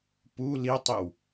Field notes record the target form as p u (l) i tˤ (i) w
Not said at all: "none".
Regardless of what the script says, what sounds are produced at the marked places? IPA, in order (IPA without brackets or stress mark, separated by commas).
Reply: l, i